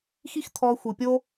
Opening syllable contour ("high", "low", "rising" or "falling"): high